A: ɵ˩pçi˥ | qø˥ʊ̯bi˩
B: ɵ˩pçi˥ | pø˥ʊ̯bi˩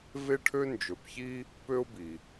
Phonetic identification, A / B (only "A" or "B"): B